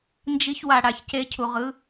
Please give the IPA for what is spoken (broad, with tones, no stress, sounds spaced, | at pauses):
n d͡ʒ i˧ ç w a˨ ɽ a˨ ç c e˧ cʰ u˨ ʁ ɯ˨˦